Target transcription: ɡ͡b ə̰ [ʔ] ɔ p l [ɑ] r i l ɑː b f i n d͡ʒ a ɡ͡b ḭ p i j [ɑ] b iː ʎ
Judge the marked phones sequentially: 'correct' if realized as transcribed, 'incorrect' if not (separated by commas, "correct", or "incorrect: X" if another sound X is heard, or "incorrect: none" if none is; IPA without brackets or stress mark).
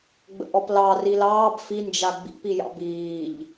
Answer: correct, correct, incorrect: ɑ̰